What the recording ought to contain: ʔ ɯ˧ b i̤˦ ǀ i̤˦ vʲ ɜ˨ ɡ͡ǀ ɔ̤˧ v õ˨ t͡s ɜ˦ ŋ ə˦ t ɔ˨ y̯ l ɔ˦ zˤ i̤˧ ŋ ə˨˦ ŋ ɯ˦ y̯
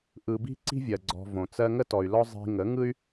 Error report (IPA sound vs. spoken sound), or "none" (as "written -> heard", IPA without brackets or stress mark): none